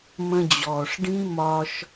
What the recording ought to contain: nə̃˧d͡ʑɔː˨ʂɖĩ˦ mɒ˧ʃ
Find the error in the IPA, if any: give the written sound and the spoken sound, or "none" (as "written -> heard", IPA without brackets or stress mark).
n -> m